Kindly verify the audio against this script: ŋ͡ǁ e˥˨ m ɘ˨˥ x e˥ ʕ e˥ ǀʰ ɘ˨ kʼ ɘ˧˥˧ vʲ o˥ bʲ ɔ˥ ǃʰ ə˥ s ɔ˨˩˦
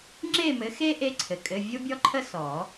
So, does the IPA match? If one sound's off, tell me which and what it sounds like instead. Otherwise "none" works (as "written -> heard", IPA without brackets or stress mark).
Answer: ʕ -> ʔ